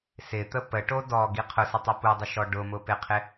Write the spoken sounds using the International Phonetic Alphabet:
s ɪ t̪ ə p ə ʈ o d ɔ ɡ i qʰ ʊ s ɪ tˤ o p u dˤ ɪ ʃ ɔ ɖ ʊ m ʊ p ɪ qʰ ɪ

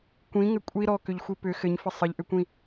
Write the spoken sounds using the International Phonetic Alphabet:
kʷ ĩ ŋ ɘ kʷʼ i ɾ ɔ k ʏ ʎ xʷ i p ʏ x ɘ ɲ f ɘ sˤ ɘ ʎ ʔ ʏ kʷ ĩ

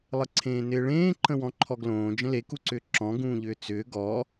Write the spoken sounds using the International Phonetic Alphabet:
lˠ ə ǀʰ ẽː n ɪː ɭ ẽː ǃ ə̃ w ɔ̃ ǃʰ ɔ ɡ l õː d͡ʒ ə̃ l e k u ǀ ʏː ǁ ɔ̃ ɡ ũː ʎ ʏː t͡s ʏː ɡ ɔ

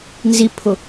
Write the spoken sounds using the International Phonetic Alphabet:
n z i pʰ ʊ

